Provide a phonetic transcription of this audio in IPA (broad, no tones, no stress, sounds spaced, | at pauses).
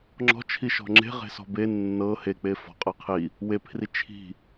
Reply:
ŋ͡ǁ ɔ̤ t͡ʃʰ i ʃ ɔ̤ ŋ͡ǁ e̤ ʁ e̤ s ɔ̤ b e nː ɤ h e k͡p e f ɔ̤ qʼ ɤ qʰ i | w e pʰ r i t͡ʃʰ i̤